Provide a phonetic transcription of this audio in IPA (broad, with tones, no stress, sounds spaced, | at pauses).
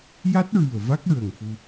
j a˦˥ t̚ ɹ ɨ˨˩ ə̯ v a˦˥ k̚ ɹ ə˨˩ ŋ f u˧